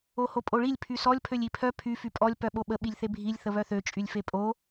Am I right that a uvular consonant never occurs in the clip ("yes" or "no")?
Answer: yes